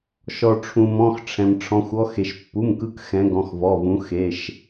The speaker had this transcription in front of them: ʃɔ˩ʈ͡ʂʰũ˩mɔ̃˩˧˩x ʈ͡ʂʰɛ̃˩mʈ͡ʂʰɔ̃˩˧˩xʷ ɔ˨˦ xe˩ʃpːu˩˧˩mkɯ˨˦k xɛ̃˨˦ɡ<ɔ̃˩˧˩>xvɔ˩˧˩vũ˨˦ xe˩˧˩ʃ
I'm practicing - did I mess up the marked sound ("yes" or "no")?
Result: no